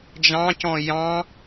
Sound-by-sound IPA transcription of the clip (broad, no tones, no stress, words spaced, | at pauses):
d͡ʒɑ̃cɔ̃ jɑ̃